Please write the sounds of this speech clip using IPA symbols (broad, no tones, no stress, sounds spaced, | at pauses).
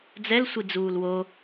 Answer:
d͡z ɛ l sʷ i d͡z uː l w o